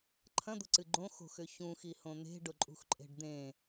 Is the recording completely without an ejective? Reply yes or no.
no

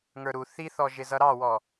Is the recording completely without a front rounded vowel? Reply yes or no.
yes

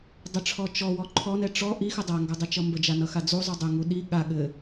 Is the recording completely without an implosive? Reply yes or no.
no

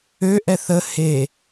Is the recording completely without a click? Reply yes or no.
yes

